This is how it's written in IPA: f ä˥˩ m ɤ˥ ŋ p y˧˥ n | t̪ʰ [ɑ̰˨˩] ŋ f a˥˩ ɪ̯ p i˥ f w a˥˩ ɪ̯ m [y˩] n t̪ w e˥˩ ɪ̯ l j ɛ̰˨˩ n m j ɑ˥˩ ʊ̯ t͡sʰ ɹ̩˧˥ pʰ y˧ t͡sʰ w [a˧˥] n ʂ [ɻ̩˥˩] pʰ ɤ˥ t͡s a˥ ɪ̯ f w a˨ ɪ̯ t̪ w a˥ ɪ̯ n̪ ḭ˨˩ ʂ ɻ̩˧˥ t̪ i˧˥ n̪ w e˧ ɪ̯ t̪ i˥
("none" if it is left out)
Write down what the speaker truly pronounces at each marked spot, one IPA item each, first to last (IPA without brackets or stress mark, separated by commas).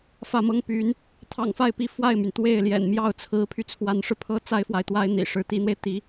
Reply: ɑ̰˨˩, y˩, a˧˥, ɻ̩˧